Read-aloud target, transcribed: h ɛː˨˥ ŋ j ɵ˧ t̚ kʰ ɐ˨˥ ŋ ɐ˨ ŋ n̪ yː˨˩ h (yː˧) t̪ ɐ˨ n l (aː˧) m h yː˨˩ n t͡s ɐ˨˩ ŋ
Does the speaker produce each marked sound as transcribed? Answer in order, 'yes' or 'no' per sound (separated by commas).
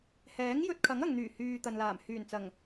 no, no